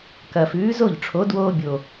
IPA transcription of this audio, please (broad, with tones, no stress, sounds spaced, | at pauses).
k ɐ˨˩ f ʉː˨˥ z o˥˩ ʎ ʈ͡ʂʰ o˨˥ d w oː˦ bʲ o˨˩